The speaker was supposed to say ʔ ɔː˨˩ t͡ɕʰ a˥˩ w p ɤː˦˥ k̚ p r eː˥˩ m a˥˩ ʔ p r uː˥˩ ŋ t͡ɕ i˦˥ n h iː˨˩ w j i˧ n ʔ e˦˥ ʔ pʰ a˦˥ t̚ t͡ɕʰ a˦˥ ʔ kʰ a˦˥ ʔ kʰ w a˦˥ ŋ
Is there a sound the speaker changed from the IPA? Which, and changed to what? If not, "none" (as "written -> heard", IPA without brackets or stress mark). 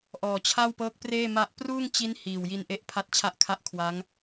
none